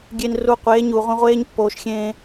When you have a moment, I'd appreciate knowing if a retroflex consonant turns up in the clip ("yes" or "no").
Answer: no